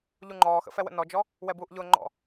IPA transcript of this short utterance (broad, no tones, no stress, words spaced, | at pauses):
ʎuŋ͡ǃɔːxə̰fɛ wə̰nɔd͡ʒɔ | wɛbuːʔʎʊːŋ͡ǃɔ̰